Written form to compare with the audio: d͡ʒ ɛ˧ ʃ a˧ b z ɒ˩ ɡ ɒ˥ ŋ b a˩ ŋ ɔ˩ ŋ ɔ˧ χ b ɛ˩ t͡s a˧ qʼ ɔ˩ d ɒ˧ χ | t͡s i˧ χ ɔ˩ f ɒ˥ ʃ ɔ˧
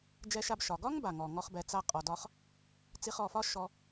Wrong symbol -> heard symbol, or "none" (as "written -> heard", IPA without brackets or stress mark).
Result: z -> ʃ